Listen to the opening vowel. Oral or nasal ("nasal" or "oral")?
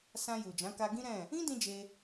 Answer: nasal